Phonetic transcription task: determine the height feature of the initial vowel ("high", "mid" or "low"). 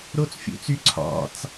mid